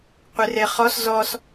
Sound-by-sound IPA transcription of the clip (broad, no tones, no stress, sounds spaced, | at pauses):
qʷ ɪ r e χ ɔ s z ɔ s